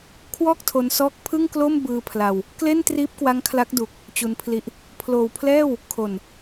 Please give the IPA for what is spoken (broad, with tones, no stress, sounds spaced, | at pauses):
kʰ w ɔː˥˩ k̚ tʰ o˧ n s ɔː˦˥ k̚ pʰ ɯ˥˩ ŋ k l o˥˩ m b ɯː˧ pʰ l a˧ w | k l e˥˩ n t r iː˦˥ p̚ k w a˦˥ ŋ kʰ l a˦˥ k̚ d u˨˩ k̚ | t͡ɕ u˧ n pʰ l i˦˥ ʔ | pʰ l oː˨˩ w pʰ l ɛː˥˩ w | kʰ o˨˩ n